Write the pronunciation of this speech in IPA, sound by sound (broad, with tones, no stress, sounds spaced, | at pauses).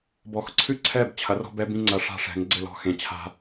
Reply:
b ɔ˨ x ǀʰ ɨ˦ ǀʰ ɛ˦˨ b t͡ɕʰ ɐ˩˥ r ɔ̤˦ b ɛ˦ b ĩ˦ ŋ͡ǀ ɐ˨˩˦ ʂ a̤˦˨ ʂ ɛ̤˨˩˦ ŋ ɡ͡ǀ ɘ˦˨ l ɔ̤˦˨ x ẽ˨ t͡ɕʰ a̤˦